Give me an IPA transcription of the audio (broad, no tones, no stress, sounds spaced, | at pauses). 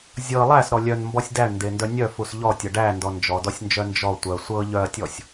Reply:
zʲ ɤ lˠ æ s ɾ ɔ lʲ œ n m b ɔ sʲ d æ ɳ n d e n d œ nʲ œ f u s ʎ ɔ tʲ ɤ ɖ æ n d ɔ n d͡ʒ ɔ d ɔ sʲ n d͡ʒ œ n d͡ʒ ɔ tʷ œ sʷ ɤ ʎ œ ɐ̯ tʲ ɔ sʲ